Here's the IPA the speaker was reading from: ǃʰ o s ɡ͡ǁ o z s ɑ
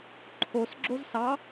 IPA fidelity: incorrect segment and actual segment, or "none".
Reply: none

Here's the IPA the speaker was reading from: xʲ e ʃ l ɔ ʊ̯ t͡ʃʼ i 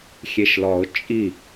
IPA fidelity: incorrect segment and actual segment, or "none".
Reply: none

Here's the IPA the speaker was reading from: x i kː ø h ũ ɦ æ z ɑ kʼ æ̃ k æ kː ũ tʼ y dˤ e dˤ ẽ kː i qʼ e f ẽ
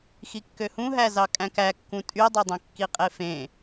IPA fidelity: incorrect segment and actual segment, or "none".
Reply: none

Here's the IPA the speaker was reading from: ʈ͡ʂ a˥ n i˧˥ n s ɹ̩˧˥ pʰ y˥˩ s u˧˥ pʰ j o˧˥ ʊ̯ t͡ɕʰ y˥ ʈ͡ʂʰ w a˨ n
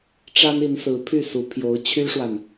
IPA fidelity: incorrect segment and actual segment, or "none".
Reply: ʈ͡ʂʰ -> ʂ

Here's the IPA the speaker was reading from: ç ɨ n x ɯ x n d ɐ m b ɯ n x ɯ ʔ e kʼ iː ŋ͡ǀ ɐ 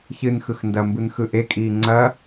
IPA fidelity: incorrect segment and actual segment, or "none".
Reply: none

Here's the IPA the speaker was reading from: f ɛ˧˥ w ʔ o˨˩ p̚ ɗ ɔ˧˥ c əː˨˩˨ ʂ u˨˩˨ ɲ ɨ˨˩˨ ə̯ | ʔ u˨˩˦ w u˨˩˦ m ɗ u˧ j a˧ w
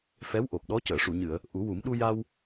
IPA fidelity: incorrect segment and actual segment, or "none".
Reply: none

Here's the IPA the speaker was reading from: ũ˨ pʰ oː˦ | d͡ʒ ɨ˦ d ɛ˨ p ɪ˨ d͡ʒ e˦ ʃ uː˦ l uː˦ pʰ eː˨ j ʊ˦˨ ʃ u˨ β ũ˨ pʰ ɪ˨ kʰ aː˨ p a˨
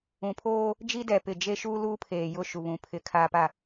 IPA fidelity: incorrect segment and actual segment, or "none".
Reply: ɨ˦ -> i˦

